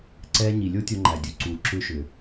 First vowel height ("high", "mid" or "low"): mid